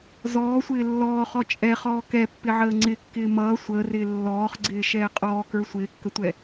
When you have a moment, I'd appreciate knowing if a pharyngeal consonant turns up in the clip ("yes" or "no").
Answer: yes